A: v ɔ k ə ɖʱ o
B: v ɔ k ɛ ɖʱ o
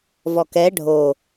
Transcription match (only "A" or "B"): B